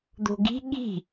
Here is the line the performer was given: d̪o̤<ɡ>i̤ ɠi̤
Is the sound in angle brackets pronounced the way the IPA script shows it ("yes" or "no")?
yes